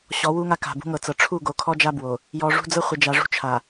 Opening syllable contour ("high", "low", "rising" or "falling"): rising